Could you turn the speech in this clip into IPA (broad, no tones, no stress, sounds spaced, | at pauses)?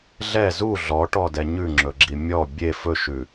ɮ ɛ z u ɮ ɔ ʈ ɔ d ɛ ɲ ʉ ŋ͡ǁ ɵ ɡ͡ǁ i mʲ ɔ bʲ e f ɵ ʃ ʉ